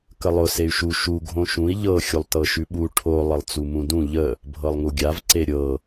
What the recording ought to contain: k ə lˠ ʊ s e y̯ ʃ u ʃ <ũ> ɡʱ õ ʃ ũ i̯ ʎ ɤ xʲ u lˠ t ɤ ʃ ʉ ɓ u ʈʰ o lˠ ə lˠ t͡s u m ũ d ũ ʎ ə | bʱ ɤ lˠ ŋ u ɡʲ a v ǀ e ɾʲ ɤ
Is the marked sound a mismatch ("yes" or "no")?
yes